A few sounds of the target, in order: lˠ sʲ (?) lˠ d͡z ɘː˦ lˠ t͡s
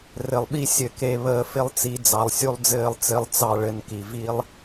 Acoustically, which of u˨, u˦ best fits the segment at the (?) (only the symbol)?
u˦